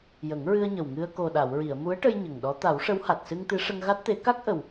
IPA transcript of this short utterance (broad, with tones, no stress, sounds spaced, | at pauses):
j ə˨˩˦ ŋ ɹ ɨ˧ ə̯ ɲ ə˨˩ w ŋ ɨ˧ ə̯ k o˨˩ ɗ a˨˩˨ w ɹ i˨˩˨ ə̯ m u˧˥ ə̯ ʈ ə˧ j ɲ ə˨˩ ŋ ɗ ɔ˧˥ t̪ a˨˩˦ w ʂ ə˧˥ w h a˨˩ t̚ s ɨ˧ ŋ t̪ ɨ˧˥ ʂ ə˧ ŋ ɣ a˦˥ t̚ t̪ e˧˥ k a˦˥ k̚ ʔ ə˨˩ w